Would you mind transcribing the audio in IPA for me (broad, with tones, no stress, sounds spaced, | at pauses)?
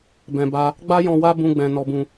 b ɛ̃˨ b a˧ | ɡ͡b a˦ j ɔ̃˧ w a˦ b ũ˧ ɡ͡b ɛ̃˨ n ɔ˧ b ũ˧